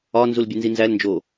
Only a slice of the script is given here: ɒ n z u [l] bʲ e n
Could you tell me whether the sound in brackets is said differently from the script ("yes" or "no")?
no